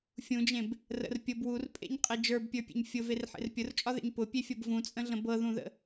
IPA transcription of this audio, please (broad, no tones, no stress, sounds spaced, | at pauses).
fʲ ũ d͡ʒ ẽ b | r ə̰ r pʲ ʊ b w u r pʼ ḛ ɲ qʼ e d͡ʒ ə˞ b pʲ ə˞ pʲ ḛ ɲ fʲ ʊ v e r ħ ḛ r pʲ ʊ r t͡ʃʼ ɒ ð ḛ ɲ p ʊ pʲ e fʲ ɤ b v ũ t͡sʼ ə̃ ɮ ə̃ b ɤ ð ũ ð ə̰